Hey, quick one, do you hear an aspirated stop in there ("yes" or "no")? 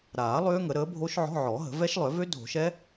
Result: no